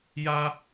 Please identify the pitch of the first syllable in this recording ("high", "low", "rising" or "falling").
high